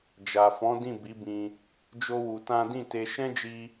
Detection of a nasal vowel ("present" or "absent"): present